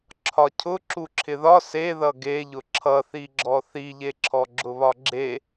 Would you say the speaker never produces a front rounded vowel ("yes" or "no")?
yes